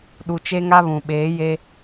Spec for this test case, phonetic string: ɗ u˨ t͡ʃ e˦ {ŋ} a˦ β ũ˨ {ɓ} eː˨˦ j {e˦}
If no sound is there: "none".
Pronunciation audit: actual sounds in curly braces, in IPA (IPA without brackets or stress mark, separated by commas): ŋ, ɓ, e˦